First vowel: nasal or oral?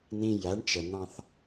nasal